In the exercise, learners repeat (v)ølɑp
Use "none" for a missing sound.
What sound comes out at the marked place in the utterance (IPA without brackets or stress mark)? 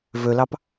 v